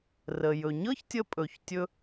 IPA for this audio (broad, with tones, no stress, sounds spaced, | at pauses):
r ə˩ j ɵ˩ ɲ ɤ˥ ç tʲ ə˧ pʼ ɵ˩ ç tʲ ɵ˧